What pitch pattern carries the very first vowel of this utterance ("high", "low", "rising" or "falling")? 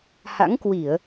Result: rising